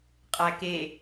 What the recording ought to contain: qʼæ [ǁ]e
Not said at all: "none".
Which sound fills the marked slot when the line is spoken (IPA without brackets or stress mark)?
k